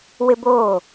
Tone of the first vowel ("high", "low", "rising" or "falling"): high